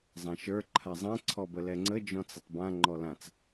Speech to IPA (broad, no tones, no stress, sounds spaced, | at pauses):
zˤ ã ʃ ə˞ ǃʰ a zˤ ɛ̃ ǀʰ ɔ b ə l ɛ ŋ͡ǀ ə d͡ʒ ɔ̃ t͡s ə tˤ b ã ŋ͡ǃ ɔ l ã t͡s